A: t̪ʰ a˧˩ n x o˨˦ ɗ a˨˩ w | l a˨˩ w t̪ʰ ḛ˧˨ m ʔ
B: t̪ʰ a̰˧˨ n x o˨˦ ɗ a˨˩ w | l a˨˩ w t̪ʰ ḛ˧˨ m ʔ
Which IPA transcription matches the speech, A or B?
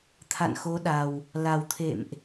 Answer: B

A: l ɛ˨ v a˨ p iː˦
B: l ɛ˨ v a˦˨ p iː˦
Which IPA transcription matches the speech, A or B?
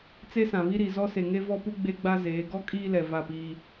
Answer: B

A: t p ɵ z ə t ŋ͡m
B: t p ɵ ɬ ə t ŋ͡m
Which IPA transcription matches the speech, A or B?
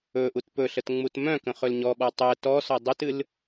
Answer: B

